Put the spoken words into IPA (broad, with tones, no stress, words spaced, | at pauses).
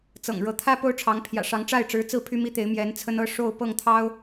t͡sɤ̰˨˩ŋ ɻɤ˧˥t̪ʰä˥ po˥ʊ̯ʈ͡ʂʰɑ˧˥ŋpʰjä̰˨˩ʂɑ˧˥ŋ ʈ͡ʂa˥˩ɪ̯ʈ͡ʂɻ̩˧˥t͡sɹ̩˥˩ pʰy˥mi˥t̪e˧˥ɪ̯ mjɛ˧˥nt͡sʰə˥nɤ˥ ʂo˥˧ʊ̯ pɤ˥˩ŋt̪ʰɑ˥ʊ̯